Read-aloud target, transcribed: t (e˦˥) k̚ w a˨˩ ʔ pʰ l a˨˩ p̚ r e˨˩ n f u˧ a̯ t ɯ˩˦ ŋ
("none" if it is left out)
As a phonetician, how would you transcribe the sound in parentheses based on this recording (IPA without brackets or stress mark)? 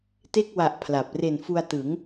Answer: e˥˩